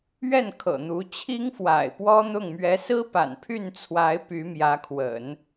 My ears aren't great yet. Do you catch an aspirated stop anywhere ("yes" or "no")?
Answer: yes